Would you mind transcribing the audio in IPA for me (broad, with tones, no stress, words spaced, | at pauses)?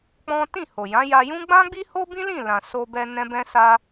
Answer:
k͡pɔ̃˦ tĩ˦˨ho˨jã˨˦ ja˧jũ˦ ɡ͡bã˦ɡ͡bi˦ ho˦bĩ˦lĩ˦˨lã˨ so˧bɛ˧ nɛ̃˦bɛ̃˦sa˦